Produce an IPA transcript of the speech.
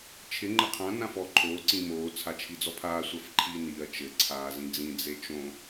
t͡ʃʰɪ ŋ͡ǃɘqʰã nãfɔ ǃʰoː ǀĩmoː t͡sʰat͡ʃʰid͡zɔpʰaː sʷafǃʰiːniːɐ̯ t͡ʃɘ ǀʰaːzĩd͡zĩ d͡zet͡ʃõ

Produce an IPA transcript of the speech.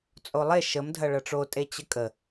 t͡sʼolˠe ʃəm dʱɐɭɐʈ͡ʂotʼe t͡ɕəkʼə

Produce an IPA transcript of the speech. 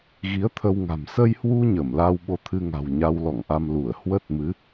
ɣi˨˦ə̯t̪ʰə˧wŋa̤˨˩m sə˧jhwu˧ ɲə˧˩mla˧w ɓo˧t̪ʰɨ˧ŋa̤˨˩w ɲa˧wlɔ̰˧˨ŋʔa˧m lu˧˩ə̯hwə˦˥t̚mɨ˨˦

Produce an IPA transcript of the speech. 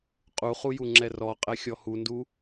qʼuχujuŋ͡ǁɛ rɔqʼɛxʲɔ hundu

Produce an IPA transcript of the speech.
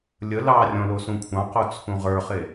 lʲə lɑrʲɔ̃ losũkʷʰɑ̃qo t͡sʰũʁə˞χe

